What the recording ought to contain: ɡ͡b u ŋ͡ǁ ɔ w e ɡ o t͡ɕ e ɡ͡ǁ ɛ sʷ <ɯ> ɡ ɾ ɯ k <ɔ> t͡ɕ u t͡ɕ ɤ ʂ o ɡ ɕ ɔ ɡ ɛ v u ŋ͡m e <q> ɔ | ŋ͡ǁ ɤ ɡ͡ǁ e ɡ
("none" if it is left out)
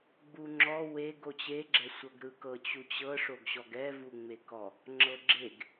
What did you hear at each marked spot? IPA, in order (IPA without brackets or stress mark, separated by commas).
ɤ, ɤ, k